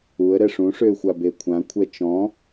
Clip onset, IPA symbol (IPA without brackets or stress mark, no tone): u